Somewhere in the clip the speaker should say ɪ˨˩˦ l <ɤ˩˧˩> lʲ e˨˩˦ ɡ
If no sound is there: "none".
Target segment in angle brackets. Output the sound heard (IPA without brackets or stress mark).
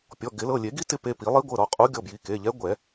ɤ˩˧˩